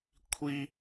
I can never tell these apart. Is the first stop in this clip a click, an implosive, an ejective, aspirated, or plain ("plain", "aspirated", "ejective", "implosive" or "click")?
aspirated